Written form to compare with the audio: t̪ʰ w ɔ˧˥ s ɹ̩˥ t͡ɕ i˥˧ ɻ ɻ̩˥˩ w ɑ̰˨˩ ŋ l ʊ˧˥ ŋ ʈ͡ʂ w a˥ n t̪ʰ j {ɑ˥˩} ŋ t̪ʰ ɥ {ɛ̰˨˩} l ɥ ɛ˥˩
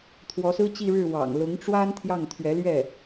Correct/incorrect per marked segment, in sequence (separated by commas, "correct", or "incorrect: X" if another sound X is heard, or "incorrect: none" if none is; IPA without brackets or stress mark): correct, incorrect: ɛ˧˥